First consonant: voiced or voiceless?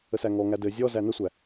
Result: voiceless